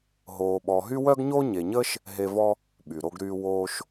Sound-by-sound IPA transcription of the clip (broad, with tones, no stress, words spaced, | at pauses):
ɦoː˨ɓɔ˨ ɦy˥wœ˥ɡɲo˥ ɲe˨ɲəː˥ʃ | ɦe˦vɔ˥ | ɓy˩ɾo˦ɡɾyː˦ woː˦ʃ